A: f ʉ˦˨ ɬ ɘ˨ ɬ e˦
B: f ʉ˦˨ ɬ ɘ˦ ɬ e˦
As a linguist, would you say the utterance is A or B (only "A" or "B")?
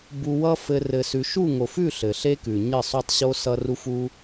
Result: A